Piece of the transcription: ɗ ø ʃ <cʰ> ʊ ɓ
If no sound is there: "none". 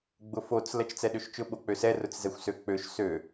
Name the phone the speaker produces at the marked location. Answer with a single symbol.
t͡ʃ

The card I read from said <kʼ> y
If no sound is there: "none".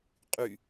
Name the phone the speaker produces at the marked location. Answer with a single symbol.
qʼ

